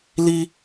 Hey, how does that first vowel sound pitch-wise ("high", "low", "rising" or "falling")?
high